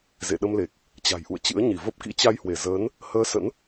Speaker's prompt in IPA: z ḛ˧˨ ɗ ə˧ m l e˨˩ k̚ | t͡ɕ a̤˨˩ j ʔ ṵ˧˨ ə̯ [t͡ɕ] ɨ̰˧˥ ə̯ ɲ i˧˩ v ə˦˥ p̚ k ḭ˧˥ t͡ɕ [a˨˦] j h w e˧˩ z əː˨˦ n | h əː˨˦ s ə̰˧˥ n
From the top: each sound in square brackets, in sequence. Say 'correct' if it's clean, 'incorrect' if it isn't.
correct, incorrect: a˧

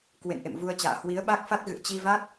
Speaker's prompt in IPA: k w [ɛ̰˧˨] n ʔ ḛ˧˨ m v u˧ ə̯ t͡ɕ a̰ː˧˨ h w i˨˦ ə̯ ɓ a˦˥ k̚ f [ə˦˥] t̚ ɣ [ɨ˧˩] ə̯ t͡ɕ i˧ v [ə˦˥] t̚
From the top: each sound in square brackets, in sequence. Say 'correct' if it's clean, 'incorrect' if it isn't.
incorrect: ḛ˧˨, incorrect: a˦˥, incorrect: ɨ̰˧˨, incorrect: a˦˥

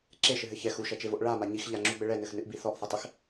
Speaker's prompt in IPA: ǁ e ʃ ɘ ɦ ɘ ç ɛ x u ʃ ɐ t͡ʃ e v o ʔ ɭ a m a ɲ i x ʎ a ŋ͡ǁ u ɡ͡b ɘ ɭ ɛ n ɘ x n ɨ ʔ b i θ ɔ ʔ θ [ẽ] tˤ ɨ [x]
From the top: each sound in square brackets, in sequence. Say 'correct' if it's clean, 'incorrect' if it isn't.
incorrect: e, correct

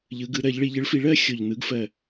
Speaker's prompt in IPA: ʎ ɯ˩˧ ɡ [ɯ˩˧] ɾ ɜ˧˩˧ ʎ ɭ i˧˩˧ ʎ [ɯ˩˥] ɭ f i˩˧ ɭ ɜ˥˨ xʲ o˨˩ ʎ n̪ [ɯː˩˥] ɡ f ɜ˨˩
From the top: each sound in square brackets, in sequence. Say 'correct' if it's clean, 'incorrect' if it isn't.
correct, correct, incorrect: ɯ˩˥

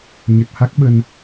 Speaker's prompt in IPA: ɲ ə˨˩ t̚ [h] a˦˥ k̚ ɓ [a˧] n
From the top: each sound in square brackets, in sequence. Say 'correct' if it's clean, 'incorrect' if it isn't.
correct, incorrect: ə˧

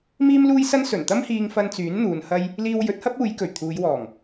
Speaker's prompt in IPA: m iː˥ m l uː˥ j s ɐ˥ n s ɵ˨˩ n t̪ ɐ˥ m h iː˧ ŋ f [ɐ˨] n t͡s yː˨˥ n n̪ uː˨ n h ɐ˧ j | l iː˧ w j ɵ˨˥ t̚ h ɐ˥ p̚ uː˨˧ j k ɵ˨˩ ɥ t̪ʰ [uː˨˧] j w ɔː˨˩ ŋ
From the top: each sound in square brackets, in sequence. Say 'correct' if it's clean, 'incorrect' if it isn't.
incorrect: ɐ˧, correct

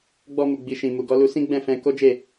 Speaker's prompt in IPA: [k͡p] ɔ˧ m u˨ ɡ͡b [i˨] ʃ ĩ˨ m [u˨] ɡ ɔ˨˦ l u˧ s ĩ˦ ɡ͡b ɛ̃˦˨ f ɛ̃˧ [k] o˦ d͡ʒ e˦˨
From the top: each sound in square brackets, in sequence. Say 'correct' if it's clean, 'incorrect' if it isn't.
incorrect: ɡ͡b, correct, correct, correct

